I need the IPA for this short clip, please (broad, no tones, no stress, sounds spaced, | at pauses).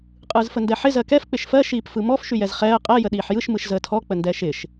qʼ ɯː z f ə n d ɛ ħ ɪ z ɜ k ɛ f k͡p ɪ ʃ f ɜ ʃ iː p f ɯ m ɔ f ʃ y j ɛ z χ ɛː ə̯ qʼ ɜ j ə ɗ iː ħ j ɯ ʃ m ɯ ʃ z əː tʰ ɔ k͡p ə n d ɛː ʃ ɪ ʃ